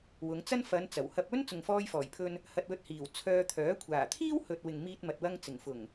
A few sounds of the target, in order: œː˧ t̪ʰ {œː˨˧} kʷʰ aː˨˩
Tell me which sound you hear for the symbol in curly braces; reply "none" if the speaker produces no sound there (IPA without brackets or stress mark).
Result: œː˨˥